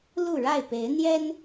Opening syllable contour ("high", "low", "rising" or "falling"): falling